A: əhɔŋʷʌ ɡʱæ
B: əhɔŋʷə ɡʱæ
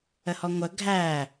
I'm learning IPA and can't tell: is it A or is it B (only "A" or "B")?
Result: B